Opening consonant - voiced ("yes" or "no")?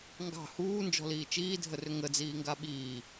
yes